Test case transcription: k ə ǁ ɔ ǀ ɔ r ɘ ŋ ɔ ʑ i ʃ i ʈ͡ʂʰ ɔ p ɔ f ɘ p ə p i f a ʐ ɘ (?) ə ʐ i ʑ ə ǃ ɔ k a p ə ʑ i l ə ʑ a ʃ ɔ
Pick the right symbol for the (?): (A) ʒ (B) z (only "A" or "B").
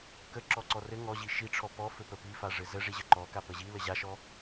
B